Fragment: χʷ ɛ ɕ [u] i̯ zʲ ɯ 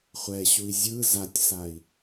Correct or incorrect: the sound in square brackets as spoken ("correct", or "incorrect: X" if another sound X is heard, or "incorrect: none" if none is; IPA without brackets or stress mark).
correct